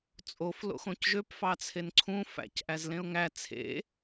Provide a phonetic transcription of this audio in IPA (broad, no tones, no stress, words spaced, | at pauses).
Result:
t͡sʼof lo̰xõcʒøp fɑt͡sʰenǀʰũ fæ̰c ʔæzlẽʊ̯ŋæ t͡sʰḛ